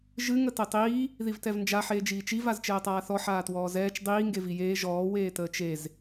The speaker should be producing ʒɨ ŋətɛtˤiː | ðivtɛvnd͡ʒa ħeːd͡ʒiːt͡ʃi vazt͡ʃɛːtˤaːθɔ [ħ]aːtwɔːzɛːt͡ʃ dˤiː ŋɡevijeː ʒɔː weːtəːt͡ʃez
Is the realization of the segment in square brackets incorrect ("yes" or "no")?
no